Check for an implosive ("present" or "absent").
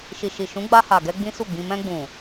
absent